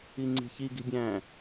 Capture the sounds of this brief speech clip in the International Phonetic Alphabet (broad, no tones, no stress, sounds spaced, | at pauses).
i ŋ͡ǀ i̤ ç i ɡ i̤ bʲ æ̃